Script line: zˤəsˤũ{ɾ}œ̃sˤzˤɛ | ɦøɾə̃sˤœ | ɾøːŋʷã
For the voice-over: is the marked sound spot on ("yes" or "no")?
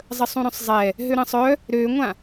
yes